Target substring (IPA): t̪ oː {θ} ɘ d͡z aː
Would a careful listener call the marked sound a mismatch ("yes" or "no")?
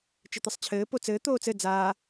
yes